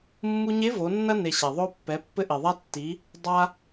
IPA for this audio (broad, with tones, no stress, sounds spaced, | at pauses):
mː u˧ ɲ e˧˥ v o˩˧ nː ɐ˧ n e˩ ɕ a˩ ðˤ o˧ pː ɛ˩˧ pː ɘ˧ ʔ i˩ ðˤ a˧ tː i˩˧ | dˤ a˧